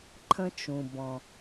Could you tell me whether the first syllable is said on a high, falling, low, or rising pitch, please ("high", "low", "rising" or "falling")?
high